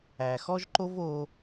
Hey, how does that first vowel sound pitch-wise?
low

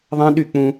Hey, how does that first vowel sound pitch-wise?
high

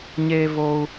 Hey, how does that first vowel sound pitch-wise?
high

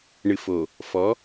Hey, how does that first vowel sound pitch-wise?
low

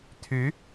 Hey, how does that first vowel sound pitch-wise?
rising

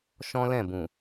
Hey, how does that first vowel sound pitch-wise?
high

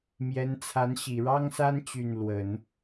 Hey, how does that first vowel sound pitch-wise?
rising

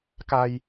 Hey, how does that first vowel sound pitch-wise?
low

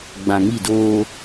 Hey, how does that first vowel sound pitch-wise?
low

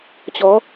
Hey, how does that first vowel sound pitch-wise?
rising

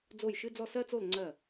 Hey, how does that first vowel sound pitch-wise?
falling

